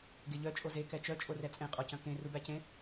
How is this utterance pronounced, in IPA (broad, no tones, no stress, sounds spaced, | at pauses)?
ɡ e ʎ œ t͡ʃʼ o z e k ɛ t͡ʃ œ t͡ʃʼ o r ɛ t͡sʼ ẽ qʼ ɔ c œ̃ k ẽ r u b æ c ẽ